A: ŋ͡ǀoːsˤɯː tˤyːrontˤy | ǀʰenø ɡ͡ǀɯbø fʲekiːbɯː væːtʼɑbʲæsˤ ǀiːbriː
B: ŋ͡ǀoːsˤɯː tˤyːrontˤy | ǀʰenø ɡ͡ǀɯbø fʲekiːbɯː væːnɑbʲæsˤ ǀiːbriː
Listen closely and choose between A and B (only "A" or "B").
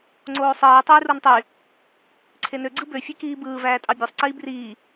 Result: A